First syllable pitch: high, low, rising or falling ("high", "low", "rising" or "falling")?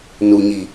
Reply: low